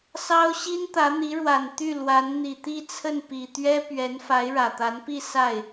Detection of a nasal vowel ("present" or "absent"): absent